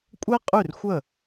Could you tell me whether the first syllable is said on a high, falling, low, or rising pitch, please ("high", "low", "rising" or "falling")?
high